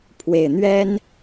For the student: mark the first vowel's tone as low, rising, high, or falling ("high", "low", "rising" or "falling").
low